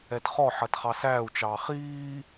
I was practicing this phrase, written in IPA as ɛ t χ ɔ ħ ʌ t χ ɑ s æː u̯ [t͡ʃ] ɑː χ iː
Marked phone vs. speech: correct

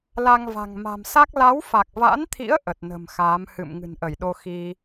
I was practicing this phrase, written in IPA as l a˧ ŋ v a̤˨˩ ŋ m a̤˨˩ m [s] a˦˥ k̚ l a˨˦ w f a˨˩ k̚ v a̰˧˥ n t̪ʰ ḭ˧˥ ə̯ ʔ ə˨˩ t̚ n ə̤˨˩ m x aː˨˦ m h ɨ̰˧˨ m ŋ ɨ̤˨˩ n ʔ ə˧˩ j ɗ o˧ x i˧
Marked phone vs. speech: correct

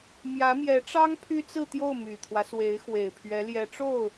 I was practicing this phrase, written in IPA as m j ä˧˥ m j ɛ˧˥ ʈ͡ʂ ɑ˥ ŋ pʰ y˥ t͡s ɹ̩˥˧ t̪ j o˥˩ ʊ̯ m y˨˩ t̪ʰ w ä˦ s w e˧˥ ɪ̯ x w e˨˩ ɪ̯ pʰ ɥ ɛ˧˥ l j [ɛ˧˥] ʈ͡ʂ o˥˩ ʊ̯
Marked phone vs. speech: correct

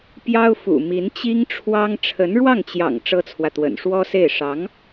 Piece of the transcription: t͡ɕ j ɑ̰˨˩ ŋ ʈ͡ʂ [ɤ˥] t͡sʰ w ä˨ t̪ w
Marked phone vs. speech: correct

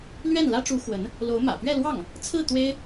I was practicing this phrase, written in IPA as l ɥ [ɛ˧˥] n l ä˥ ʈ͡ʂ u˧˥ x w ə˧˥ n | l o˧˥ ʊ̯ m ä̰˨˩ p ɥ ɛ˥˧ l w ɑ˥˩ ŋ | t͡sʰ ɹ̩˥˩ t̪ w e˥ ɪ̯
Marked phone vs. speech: incorrect: ɛ˥˩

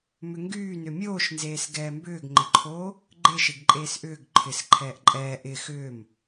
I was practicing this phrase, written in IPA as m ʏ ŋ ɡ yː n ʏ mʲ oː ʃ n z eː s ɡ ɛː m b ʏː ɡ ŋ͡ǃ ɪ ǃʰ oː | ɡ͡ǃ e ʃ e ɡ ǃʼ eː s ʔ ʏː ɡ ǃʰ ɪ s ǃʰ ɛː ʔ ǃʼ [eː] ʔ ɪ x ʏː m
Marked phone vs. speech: incorrect: ɛː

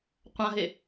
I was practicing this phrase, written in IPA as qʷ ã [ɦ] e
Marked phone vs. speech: correct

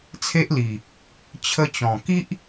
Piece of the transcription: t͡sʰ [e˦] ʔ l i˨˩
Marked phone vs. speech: correct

